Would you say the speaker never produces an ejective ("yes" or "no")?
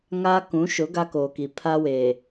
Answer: yes